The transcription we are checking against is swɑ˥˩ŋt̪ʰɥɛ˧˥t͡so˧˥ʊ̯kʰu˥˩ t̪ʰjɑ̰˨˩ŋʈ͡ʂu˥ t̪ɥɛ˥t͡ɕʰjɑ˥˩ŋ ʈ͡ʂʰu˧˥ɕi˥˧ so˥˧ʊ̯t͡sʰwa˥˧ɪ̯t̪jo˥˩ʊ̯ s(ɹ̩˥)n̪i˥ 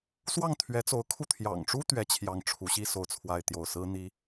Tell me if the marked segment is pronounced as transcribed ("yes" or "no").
yes